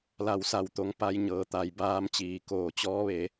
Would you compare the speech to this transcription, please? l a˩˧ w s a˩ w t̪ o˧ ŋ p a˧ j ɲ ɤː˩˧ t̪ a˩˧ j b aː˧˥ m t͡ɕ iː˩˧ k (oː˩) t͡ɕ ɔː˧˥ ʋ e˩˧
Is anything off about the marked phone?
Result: no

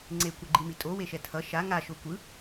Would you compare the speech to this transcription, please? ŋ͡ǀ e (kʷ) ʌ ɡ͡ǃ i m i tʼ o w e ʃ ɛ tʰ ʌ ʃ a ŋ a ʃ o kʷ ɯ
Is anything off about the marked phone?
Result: no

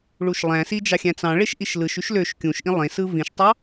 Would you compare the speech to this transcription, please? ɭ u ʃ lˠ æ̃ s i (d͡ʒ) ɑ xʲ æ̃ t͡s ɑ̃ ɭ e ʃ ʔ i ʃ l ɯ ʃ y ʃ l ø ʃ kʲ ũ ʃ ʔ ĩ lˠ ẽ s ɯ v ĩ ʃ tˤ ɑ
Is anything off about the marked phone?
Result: no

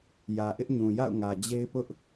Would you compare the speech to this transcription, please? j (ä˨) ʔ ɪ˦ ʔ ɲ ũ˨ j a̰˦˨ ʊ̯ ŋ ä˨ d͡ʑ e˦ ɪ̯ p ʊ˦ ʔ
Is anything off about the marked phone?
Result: no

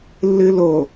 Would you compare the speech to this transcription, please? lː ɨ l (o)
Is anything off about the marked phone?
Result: no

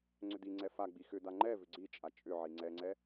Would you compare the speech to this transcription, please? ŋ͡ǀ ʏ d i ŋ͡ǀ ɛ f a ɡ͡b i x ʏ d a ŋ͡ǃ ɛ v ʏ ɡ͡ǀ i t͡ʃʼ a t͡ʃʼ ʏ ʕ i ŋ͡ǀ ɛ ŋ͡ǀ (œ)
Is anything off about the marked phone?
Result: yes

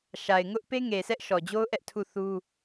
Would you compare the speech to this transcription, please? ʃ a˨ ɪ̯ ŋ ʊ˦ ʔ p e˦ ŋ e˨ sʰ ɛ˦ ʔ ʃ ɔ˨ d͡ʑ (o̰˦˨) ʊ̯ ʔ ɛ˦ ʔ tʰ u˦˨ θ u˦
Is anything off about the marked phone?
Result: yes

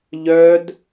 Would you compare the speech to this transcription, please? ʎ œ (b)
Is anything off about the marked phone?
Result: yes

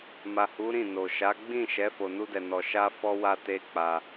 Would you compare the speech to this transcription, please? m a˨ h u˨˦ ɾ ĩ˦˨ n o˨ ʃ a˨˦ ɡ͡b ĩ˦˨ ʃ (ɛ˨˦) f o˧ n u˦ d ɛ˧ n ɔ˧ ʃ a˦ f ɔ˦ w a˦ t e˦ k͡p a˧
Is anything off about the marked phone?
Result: no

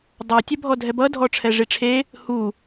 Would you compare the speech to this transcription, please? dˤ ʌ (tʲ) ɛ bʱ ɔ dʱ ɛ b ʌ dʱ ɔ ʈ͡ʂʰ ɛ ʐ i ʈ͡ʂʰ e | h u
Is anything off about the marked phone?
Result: no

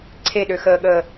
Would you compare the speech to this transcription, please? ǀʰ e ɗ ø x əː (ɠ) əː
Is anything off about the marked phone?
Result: no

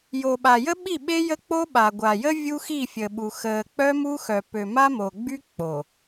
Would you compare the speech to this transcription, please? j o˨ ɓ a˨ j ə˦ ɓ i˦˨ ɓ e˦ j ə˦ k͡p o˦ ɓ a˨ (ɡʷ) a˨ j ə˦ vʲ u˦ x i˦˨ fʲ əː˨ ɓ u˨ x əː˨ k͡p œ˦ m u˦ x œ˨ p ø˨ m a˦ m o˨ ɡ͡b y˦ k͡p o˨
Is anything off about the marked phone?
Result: no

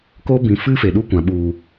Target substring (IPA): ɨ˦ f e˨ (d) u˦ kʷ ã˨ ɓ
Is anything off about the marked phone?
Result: yes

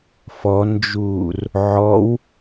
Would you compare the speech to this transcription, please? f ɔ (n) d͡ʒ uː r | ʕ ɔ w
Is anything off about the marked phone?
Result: no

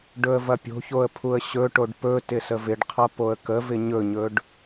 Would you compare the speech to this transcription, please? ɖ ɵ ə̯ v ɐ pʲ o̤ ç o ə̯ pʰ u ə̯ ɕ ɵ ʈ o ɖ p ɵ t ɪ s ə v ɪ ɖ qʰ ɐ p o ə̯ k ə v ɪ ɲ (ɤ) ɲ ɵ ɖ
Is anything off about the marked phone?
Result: yes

